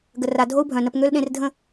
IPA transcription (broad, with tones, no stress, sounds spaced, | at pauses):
ɡ ə˨ r a˨ dʱ o˦ u̯ bʱ œ̃˨ n ə˧ p ŋ ø˦ l ɗ ẽ˧ r dʱ ə̃˦˨